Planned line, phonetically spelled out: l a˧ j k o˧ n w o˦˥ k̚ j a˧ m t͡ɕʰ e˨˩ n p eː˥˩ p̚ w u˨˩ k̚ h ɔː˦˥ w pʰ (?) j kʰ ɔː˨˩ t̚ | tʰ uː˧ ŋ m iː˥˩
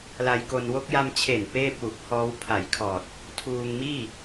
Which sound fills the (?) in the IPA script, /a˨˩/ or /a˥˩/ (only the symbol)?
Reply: a˨˩